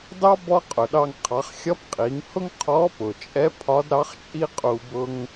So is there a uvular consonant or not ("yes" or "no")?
yes